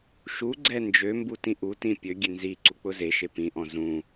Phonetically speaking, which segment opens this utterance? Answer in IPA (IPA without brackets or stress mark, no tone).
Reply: ʃ